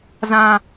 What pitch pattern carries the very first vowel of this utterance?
high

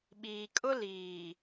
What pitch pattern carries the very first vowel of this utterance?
low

